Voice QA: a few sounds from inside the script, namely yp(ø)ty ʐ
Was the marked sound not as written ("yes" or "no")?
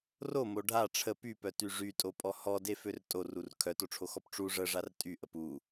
yes